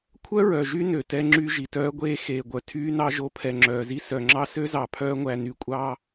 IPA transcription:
kʷʰœ˦ɹœ˨ʒy˦ nø˨tɛ˦ŋ͡ǁy˦ ʒi˨tœː˦ɡʷeː˦ xeː˨ɡʷœ˨ tʰyː˦nɑ˦ʒo˨˦ pʰɛ˨ŋ͡ǁœː˨zi˦ sœ˨ ŋ͡ǁɑ˦sø˦zɑ˨ pʰœː˦ŋʷæ˨ny˨ kʷʼɑː˦

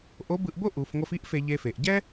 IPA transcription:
ʔo˧˥bɯ˧ʔbo˥ ʔu˩˧fŋʷʌ˧fi˥ʔ fe˧ʎe˧fe˩˧ʔ ɟɛ˥

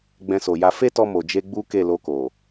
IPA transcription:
ɡ͡bɛ̃˧so˨ja˧ fe˦tɔ˧ mo˨d͡ʒe˧ ɡ͡bu˦ke˦˨ lo˧ko˨

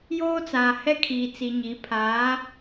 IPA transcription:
joː˦t͡saː˨ hɛ˦ kʰiː˨t͡si˨ɲi˨˦ pʰaː˨˦

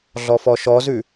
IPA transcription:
ɮɔfɔʃɔzʉ

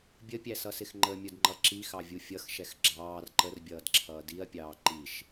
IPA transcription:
bʲəpʲæsʌsɪx ŋ͡ǃəmʲʊdŋ͡ǃʌ ǁixɑvʲu fʲʌxʃɛx ɡ͡ǁɑːr ǃərbʲʌːdǁʰʌː diɐ̯pʲɑː ǃiʃ

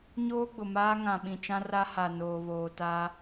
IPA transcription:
ɲoː˦ɡ͡bʊ˨maː˦ ŋã˨ɓĩ˨t͡ʃã˦ra˦ ha˨noː˨βoː˨ta˦

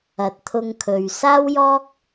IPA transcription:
ɐ˨t̚t̪ʰʊ˧ŋkʰɵ˨ɥ saː˥wjɔː˥k̚

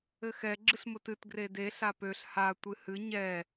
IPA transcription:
ɘxɛ ɡ͡ǁɨɬmʊtɨt ɡrede ɬapøɬ ha tʷɨhɨ ɲɛ

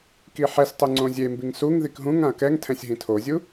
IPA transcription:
kiħɛs tˤuŋ͡ǀõzʲembiŋ suŋ ðikɦũŋãɐ̯ kɛŋtʰɛ̃sʲɦĩ tʰozʲu

